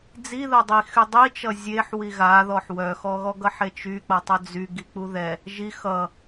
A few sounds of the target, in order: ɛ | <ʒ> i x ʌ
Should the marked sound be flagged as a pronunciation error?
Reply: no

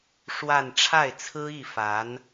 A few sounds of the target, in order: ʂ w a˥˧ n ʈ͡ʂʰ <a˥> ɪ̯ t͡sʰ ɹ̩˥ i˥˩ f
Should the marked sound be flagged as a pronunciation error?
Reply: yes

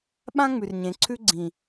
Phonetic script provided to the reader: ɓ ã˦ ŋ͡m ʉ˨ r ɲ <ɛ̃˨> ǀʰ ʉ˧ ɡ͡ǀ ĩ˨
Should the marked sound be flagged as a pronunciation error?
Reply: yes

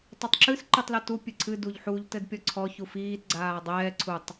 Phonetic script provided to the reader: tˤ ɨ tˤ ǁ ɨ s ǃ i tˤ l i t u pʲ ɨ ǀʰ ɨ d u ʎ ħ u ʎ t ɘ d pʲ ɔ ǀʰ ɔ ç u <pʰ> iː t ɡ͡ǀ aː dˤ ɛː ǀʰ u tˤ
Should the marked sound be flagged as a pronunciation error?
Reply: yes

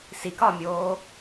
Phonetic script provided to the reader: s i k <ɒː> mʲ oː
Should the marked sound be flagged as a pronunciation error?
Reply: no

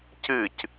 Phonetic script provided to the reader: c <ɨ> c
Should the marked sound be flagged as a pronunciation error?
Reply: no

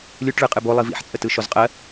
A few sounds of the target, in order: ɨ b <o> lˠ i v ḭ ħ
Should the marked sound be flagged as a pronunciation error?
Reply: no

